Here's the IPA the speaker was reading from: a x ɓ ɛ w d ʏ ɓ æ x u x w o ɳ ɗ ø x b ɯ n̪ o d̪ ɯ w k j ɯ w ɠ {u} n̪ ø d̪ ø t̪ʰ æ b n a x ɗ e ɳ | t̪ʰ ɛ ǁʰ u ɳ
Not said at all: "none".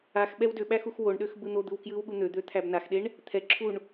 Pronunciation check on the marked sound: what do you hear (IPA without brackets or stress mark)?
u